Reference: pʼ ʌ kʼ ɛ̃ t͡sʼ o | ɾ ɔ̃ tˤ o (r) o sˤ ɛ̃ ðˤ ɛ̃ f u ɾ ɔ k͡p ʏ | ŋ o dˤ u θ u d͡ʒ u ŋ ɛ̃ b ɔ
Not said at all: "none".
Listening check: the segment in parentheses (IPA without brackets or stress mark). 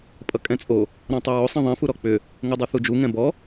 ɹ